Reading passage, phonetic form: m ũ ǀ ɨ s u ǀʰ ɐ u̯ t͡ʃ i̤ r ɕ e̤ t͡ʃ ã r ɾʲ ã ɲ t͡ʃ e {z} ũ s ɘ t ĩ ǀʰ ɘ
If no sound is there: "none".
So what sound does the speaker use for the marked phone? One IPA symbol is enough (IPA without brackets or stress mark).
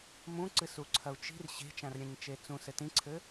t͡s